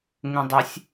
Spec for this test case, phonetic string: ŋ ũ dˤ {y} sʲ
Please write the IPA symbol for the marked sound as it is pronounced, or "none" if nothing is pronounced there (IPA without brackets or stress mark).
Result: y